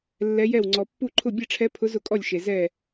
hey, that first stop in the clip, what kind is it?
click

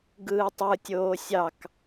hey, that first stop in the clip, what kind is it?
plain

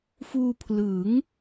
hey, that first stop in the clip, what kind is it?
aspirated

